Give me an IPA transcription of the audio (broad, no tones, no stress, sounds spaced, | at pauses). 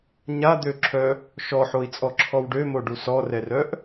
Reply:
ɲ a d̪ ø ǁʰ œ | ʃ ɔ ħ o i̯ t͡sʼ ɔ ǁʰ ɔ w ɖ ø m o ɖ u s ɔ r ɛ r œ ʔ